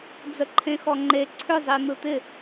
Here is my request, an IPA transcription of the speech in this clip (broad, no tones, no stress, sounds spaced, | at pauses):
d͡z ə ǃʰ ẽ x ɔ ŋ͡ǃ e ǀʰ ʏ zˤ i n̪ ɯ t̪ ɪ